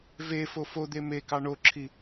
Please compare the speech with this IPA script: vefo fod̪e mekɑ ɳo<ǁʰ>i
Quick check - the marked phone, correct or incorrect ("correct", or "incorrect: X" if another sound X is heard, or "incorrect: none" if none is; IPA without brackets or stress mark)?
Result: correct